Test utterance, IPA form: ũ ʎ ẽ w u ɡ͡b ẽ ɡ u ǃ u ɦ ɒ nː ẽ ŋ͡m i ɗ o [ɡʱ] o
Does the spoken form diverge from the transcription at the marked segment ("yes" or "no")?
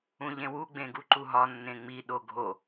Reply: no